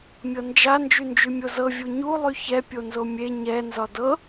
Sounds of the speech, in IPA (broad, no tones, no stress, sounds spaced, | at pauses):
mʲ ɤ n d͡ʒ a n d͡ʒ y n d͡ʒ y mʲ o z ɤ vʲ u ɲ u lˠ y ç ɛ pʲ o n z o mʲ e ɲ ɛ n z ɒ d ɤ